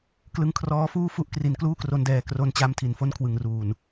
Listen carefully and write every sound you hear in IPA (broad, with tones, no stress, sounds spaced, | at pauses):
k l ɯ˦˥ ŋ kʰ r ɔː˦˥ f uː˥˩ f u˥˩ ʔ k r i˨˩ n k l uː˥˩ k r o˧ n d ɛː˨˩ k r o˧ n t͡ɕ a˦˥ m tʰ i˨˩ n f o˥˩ n kʰ w ɯ˨˩ ŋ r uː˨˩ n